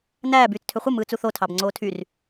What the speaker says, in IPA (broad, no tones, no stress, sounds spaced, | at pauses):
n æː b yː t͡s tʰ ø χʷ ɯ m ɯː t͡s u θ o tʰ ɑ b ŋ͡ǀ oː tʰ y r